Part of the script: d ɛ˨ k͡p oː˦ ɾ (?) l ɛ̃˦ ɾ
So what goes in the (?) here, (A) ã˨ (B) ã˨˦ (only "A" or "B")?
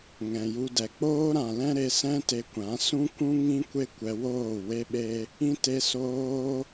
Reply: A